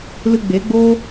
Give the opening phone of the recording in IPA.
l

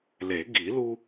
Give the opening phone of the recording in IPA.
l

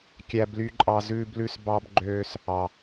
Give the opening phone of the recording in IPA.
kʲ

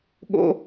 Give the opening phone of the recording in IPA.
ɠ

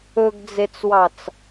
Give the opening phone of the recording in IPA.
ɵ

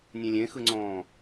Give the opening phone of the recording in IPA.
nʲ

